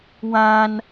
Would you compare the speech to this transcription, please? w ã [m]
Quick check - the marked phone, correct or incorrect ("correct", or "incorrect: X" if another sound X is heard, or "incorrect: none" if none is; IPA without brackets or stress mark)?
incorrect: n